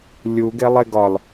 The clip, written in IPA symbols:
lʲ u ɡ e lˠ e ɡ ɒ l

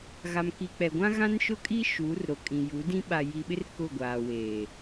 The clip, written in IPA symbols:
ɣ a˨ m k i˨ k͡p ɛ˨ ɡʷ ã˦ ɣ ã˦ n ʃ ʊ˦ kʼ i˦ ʃ uː˨˦ r ɾ o˨ kʼ ĩ˨ j u˨˦ d ĩ˦ ɓ a˨ j i˨ ɓ ɪ˦ r k ʊ˦˨ ɡʷ aː˨ w eː˨

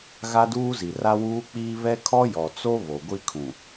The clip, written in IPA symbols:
ɣ a˦ d uː˦ z i˨ r a˦ w uː˦ k͡p iː˦ β ɛ˦ kʰ ɔ˦ j ɔ˨ t͡s o˦ β o˨ ɡʷ i˦ kʰ ũ˨

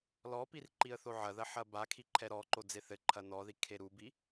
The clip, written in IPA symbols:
l ɔ p i r ǃ i ə̯ θ o ʕ ɐ ð ɐ ħ ɐ b a kʰ i ǃʰ ɛ ɾ ɔ ǃ o d͡z e θ ɘ ǃʰ ɐ n ɔ ð i kʰ e ɾ u b i

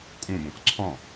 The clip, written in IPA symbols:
kʼ ũ b õ k ǀʰ ɔ̃

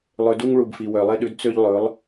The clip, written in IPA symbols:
lˠ ø˧ d u˦ ŋ ɭ u˨ b f i˨ w œ˨ lˠ e˦ ɗ ʉ˨˦ d t͡s ø˦ ʎ lˠ ɵ˨˦ lˠ

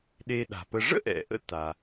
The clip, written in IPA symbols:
ɗ e˧ ɗ a̤˩ p ə˧ ʐ ə̰˥ ʔ ɛ̰˩ ʔ ə̰˧ t a˩

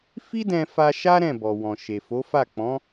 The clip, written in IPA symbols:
f i˦ d ɛ̃˧ f a˧ ʃ a˦ ɾ ɛ̃˦˨ b ɔ˨ w ɔ̃˨ ʃ e˨ f o˨˦ f a˦˨ k͡p ɔ̃˨˦

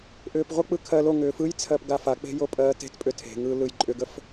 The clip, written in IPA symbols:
ʔ ʏː p ʁʷ ə k͡p ɯ kʰ ɜ l o ŋ ʏː f ɯ j t͡sʰ ɜ p ɡ a f a k͡p e̤ j o pʼ ɜː t e̤ t pʼ ʏ tʰ e̤ ŋ ɯː l ɯ j ǃʼ ʏ ɡ ə f

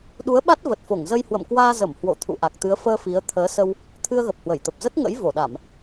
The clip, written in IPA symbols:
ɗ u˨˦ ə̯ ɓ a˦˥ t̚ v ə˨˩ t̚ f o˧˩ ŋ z ə˧ j h w ə̰˧˨ m k w aː˧ z ə˧˩ m h w o̰˧˨ t̪ʰ ṵ˧˨ ʔ a˨˩ k̚ t̪ ɨ˨˦ ə̯ f əː˧ f i˨˦ ə̯ t̪ʰ əː˨˦ s ə˧ w | t̪ʰ ɨ˧ ə̯ ɣ ə˨˩ p̚ h w ə˧˩ j t̪ ə˨˩ p̚ z ə˦˥ t̚ ŋ ə̰˧˥ j v o˧˩ ɗ a˧˩˨ m

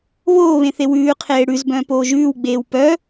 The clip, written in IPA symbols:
β oː β ẽ θ e w ʉː qʰ eː ɽ ʉ z b œ̃ː p oː ʒ ʉː w ɡ͡b eː w p œ

